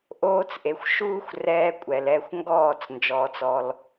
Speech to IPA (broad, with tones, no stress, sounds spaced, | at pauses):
ʔ oː˧ t͡s ʔ e˨ xʷ ʃ uː˦ xʷ r ɛː˧ kʷʼ ɛ˨ l ɛ˦˨ xʷ ŋ ɡ ɔː˦˨ t͡s n d͡ʒ ɔː˧ t͡s ɔ˧ l